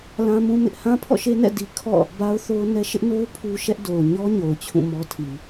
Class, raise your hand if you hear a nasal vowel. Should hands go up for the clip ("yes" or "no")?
yes